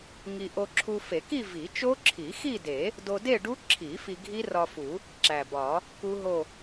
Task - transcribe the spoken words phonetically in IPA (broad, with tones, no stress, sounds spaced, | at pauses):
ŋ i˧ ʔ o˧ ǁʰ u˧ f e˨˩˦ k i˥˧ v i˨˩˦ t͡ʃ o˦˥ ǁʰ i˨˩˦ x i˥˧ d e˨˩˦ | d o˧ d e˥˧ ɖ u˦˥ ǁʰ i˨˩˦ f i˧ ɡʱ i˦˥ r ɒ˧ f u˨˩˦ | ǁ æ˨˩ b ɒ˨˩˦ | k u˦˥ ɦ o˥˧